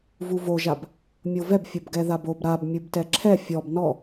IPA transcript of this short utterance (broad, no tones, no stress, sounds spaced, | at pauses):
v u v o ʒ a b | mʲ o v ɛ b fʲ o b ɡ ɛ ð a b o b ɾ a b mʲ u b t ɛ ǁʰ ɛ fʲ ɔ b n ɔ